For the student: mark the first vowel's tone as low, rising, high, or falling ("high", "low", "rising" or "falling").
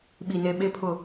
low